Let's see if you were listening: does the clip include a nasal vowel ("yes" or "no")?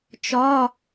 no